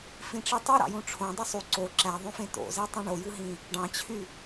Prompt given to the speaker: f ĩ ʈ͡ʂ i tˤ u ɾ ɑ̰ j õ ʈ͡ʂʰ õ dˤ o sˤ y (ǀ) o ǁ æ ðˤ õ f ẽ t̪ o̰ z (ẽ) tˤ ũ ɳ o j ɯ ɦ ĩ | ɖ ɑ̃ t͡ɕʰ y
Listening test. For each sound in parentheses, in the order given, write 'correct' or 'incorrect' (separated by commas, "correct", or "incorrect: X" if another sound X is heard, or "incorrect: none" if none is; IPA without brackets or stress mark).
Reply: correct, incorrect: e